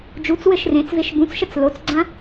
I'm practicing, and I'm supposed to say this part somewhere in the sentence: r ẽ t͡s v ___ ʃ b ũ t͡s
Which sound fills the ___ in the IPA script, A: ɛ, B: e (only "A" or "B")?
B